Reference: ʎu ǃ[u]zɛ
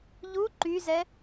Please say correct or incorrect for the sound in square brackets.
incorrect